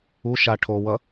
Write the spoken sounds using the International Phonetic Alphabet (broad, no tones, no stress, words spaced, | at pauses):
u ʃa ʈʰo wʌ